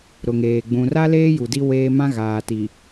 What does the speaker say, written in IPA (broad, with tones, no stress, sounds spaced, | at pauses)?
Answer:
ɾ ʊ˨ ŋ eː˨ ɡ͡b ũ˨ r a˦ l eː˦ j u˨ d i˦ w eː˦ m ã˦ ɣ aː˨ t i˨